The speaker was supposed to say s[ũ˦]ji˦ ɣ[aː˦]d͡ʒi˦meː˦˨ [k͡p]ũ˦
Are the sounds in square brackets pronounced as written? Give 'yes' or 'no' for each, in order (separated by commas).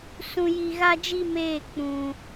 yes, no, yes